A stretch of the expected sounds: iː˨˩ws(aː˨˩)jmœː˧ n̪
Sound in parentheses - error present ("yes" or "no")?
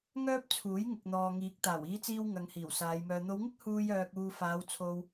yes